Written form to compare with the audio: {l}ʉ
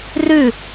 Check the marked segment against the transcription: incorrect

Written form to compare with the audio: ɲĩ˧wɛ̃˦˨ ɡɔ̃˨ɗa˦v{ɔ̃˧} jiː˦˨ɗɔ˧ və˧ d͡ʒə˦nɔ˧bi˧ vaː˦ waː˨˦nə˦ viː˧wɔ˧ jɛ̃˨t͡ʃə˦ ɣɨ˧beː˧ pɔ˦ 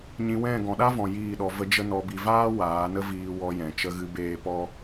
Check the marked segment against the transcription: incorrect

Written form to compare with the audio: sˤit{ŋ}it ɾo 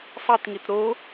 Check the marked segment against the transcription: correct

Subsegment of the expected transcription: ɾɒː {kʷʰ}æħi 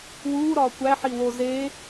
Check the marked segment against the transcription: incorrect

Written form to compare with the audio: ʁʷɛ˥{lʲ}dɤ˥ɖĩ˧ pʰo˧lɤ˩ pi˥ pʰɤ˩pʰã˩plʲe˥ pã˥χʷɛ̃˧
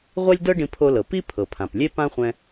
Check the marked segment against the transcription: correct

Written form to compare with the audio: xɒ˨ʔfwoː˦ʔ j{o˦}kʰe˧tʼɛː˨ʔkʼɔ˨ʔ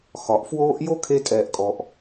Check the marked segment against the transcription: correct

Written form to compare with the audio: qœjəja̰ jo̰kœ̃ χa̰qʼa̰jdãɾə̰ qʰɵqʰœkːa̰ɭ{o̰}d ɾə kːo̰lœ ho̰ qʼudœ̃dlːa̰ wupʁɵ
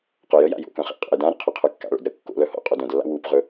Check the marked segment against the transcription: correct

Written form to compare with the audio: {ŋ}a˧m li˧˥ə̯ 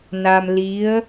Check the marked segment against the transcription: incorrect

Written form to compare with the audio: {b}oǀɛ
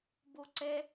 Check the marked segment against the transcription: correct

